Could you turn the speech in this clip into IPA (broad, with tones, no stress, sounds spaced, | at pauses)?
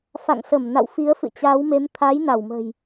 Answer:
f a̰˧˨ ŋ s ə˧˩ m n a̰˧˨ w f i˨˦ ə̯ f ɨ̰˧˨ t͡ɕ aː˨˦ w m e˨˦ m t̪ʰ aː˨˦ j n a˧˩ w m ə̤ː˨˩ j